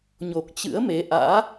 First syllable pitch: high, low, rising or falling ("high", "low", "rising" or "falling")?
low